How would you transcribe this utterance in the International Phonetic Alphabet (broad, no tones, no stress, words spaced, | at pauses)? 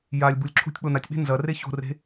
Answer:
jalʲbulʲ ǁʰṳtʲ k͡ponatʲɓe̤ nzɐ reço̤re̤